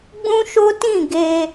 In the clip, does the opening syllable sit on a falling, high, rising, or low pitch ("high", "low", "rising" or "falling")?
high